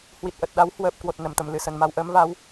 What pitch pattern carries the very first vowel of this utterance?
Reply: low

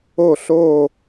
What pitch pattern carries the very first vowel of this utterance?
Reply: falling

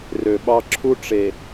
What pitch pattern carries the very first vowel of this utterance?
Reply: low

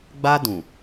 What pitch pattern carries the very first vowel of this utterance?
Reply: high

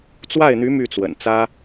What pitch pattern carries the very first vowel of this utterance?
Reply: falling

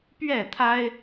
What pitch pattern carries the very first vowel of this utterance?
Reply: falling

